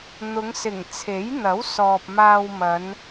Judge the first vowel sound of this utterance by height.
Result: high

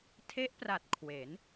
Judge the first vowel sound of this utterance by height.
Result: mid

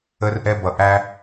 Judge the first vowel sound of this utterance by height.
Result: mid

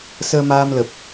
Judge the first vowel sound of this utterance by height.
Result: mid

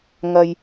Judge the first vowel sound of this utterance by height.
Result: low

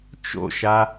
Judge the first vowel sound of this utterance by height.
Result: mid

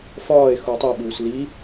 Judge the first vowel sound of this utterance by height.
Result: low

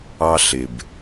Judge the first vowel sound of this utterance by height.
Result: low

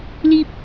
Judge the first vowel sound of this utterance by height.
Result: high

